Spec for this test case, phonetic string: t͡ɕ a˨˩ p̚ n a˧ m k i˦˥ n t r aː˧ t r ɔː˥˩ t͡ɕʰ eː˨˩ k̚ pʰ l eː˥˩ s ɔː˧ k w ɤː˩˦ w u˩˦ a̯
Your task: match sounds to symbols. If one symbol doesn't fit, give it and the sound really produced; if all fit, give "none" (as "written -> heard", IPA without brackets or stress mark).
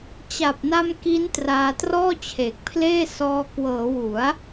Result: none